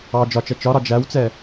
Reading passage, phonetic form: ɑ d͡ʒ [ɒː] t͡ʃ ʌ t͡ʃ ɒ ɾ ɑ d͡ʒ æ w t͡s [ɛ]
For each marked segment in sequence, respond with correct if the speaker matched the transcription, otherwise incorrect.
incorrect: ɒ, correct

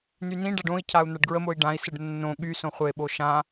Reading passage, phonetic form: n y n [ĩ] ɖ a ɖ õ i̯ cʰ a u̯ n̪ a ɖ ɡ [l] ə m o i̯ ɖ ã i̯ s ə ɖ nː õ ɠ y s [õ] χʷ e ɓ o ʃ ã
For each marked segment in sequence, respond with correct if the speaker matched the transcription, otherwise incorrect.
correct, incorrect: ɹ, correct

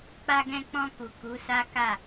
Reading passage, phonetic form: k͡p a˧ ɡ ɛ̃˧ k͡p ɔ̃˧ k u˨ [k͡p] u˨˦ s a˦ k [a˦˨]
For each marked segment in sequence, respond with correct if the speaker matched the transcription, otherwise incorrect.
incorrect: k, correct

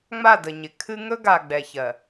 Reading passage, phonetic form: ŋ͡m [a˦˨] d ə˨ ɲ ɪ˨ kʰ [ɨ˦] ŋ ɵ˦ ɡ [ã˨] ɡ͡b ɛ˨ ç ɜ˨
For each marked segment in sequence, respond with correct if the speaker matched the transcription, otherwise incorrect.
correct, correct, incorrect: a˨

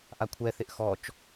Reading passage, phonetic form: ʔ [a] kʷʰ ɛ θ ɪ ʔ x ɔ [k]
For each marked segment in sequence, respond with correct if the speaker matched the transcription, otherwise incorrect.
correct, incorrect: t͡ʃ

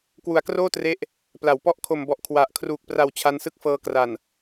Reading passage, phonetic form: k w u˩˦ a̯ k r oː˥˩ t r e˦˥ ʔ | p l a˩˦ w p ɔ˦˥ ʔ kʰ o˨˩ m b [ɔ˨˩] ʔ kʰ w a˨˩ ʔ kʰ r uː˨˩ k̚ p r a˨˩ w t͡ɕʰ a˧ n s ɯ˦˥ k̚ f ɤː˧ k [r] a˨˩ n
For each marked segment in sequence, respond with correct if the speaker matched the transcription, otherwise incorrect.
correct, correct

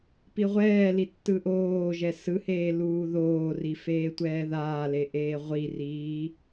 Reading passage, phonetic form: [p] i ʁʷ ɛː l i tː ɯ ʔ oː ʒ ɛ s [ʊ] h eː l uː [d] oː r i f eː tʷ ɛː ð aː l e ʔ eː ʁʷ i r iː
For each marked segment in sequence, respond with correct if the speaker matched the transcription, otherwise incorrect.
correct, incorrect: ɯ, incorrect: ð

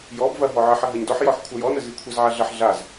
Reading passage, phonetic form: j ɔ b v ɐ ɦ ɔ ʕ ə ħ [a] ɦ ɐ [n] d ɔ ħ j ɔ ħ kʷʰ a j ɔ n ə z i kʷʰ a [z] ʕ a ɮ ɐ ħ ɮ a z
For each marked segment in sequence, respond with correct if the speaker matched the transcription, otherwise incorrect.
incorrect: ɐ, incorrect: ɲ, correct

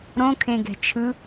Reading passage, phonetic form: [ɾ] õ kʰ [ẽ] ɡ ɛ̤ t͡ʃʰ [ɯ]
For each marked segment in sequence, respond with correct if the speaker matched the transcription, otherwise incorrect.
correct, correct, correct

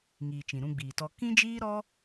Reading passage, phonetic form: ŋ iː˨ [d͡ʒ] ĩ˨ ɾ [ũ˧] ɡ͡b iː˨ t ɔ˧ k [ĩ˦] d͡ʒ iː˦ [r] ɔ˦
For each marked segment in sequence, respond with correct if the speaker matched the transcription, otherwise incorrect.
incorrect: t͡ʃ, correct, correct, incorrect: ɾ

